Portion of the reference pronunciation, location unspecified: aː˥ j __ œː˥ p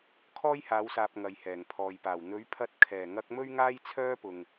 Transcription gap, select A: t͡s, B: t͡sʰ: B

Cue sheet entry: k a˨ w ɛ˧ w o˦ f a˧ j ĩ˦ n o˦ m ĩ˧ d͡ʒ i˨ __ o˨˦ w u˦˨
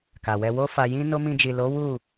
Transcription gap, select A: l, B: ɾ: A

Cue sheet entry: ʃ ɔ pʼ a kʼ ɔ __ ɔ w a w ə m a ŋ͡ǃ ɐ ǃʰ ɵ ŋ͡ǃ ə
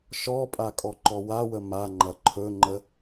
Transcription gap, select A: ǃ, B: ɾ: A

